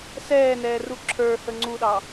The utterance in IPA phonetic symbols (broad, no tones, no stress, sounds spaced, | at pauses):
s ɛː n ɛː r u ǁʰ ə˞ h ə ŋ͡ǀ u ɗ ɑ